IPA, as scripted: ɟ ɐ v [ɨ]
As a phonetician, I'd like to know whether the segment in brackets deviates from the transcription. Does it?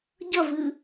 no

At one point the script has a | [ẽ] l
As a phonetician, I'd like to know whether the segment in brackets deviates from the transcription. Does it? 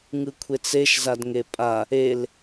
yes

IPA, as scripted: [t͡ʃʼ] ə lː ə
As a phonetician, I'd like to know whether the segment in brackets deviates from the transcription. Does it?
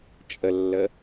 no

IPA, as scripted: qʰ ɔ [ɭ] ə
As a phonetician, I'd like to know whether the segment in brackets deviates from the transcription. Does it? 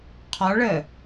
no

